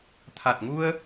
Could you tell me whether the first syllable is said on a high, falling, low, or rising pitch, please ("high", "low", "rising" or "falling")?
low